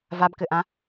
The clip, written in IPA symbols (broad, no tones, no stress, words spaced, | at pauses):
vabkɘʔã